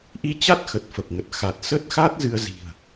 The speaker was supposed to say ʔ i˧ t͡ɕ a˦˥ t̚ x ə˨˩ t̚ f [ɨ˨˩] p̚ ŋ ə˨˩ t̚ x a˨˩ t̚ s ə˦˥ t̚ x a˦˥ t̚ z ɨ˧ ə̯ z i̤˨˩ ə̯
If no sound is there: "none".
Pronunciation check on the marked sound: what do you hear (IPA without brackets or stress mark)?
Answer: ə˨˩